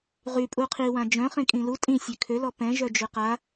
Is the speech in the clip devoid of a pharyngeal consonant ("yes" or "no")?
yes